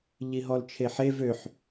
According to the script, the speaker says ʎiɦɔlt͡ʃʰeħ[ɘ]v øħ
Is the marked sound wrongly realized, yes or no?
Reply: yes